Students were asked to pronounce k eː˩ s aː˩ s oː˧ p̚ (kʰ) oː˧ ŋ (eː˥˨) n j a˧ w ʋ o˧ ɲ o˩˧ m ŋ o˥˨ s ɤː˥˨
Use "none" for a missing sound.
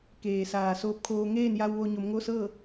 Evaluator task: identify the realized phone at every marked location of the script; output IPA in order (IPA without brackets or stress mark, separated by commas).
kʰ, eː˥˨